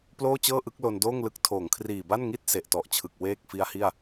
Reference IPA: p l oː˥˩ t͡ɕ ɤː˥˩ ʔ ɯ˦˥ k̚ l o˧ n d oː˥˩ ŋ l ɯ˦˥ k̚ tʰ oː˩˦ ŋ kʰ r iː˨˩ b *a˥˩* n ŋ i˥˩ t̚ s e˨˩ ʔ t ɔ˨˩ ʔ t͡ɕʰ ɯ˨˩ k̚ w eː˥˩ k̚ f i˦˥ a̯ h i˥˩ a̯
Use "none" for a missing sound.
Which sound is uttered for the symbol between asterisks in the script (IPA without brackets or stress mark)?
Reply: a˥˩